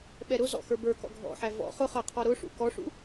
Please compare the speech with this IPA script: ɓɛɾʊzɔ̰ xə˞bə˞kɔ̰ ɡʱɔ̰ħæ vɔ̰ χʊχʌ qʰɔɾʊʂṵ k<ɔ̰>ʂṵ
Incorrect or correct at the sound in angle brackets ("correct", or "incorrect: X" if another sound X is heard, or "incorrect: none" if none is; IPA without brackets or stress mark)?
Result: incorrect: ɔ